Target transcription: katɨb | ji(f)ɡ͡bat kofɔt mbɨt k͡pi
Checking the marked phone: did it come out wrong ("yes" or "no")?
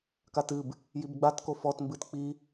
yes